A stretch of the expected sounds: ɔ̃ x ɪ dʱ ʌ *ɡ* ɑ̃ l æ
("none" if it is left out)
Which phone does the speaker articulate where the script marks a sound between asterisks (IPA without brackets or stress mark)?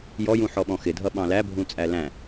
ɓ